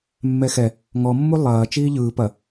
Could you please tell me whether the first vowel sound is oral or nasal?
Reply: oral